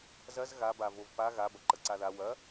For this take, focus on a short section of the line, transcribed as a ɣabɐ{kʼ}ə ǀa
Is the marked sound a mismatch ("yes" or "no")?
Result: yes